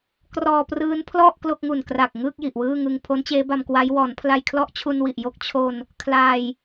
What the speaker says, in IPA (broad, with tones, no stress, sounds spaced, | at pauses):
k r ɔː˧ p r ɯː˦˥ n pʰ l ɔ˥˩ ʔ k l o˥˩ k̚ ŋ u˨˩ n k r a˨˩ k̚ ŋ ɯː˥˩ k̚ j i˨˩ ʔ w ɯː˥˩ ŋ ɯ˧ ŋ pʰ o˦˥ n t͡ɕ eː˦˥ b a˧ m k w a˦˥ j w ɔː˩˦ n pʰ l a˧ j kʰ l ɔ˥˩ ʔ t͡ɕʰ u˧ n w i˨˩ ʔ j o˦˥ k̚ t͡ɕʰ o˧ n | kʰ l aː˧ j